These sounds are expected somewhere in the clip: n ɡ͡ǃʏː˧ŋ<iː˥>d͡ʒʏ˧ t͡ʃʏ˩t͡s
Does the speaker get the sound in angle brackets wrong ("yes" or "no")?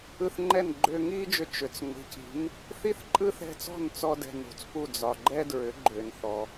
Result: no